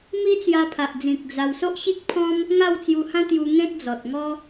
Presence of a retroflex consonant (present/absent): absent